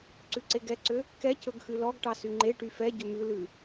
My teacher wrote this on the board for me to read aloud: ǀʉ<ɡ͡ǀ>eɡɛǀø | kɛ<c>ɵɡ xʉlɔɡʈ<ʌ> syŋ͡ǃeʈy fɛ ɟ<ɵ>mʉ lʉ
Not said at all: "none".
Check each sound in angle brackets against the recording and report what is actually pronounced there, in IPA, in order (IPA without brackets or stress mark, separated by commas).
ǀ, c, ɑ, ɵ